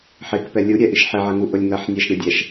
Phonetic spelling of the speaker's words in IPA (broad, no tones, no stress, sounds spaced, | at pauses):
ħ ɪ k p ɛ lʲ u ɾʲ ɛ ʔ i ʃ ħ ɪ ʕ ɐ ŋ u ʔ ʊ lʲ ŋ ɐ ħ nʲ ɛ ʃ ɾʲ ɐ dʲ ɛ ʃ